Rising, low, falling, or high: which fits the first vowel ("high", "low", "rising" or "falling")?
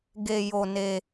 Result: low